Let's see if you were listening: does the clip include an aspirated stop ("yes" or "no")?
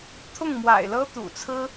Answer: yes